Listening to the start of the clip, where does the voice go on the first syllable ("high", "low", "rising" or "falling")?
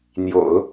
low